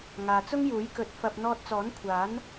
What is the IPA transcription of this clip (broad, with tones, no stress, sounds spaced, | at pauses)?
ŋ aː˨ t͡s ʊ˥ ŋ j uː˨˥ j k ɵ˨˥ t̚ f ɐ˧ p̚ n̪ ɔː˧ t̚ t͡s ɔː˨˥ n kʷʰ aː˨˥ n